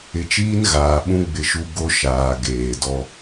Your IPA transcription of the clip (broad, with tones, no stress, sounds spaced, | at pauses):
ɪ˨ t͡ʃ iː˦ n ɣ aː˨ ɓ ũ˦ ɡ͡b ɪ˦ ʃ u˦ ɡ o˦ ʃ aː˨ ɡ eː˨ d ɔ˦